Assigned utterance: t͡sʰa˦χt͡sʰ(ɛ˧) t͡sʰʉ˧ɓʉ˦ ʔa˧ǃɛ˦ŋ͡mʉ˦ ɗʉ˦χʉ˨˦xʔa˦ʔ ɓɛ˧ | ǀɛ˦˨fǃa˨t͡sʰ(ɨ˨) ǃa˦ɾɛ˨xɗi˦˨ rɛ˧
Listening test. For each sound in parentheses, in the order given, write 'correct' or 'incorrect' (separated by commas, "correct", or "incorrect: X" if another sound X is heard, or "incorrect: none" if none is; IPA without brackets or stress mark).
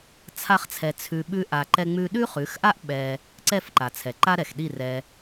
correct, incorrect: ɛ˨